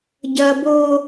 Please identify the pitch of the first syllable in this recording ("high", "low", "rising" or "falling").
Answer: high